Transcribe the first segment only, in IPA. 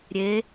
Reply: ɾʲ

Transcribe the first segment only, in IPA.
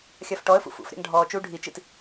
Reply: xʲ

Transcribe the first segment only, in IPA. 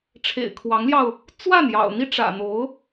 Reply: ʈ͡ʂʰ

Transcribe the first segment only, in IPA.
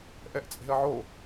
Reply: ʔ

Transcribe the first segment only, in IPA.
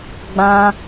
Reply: ɡ͡b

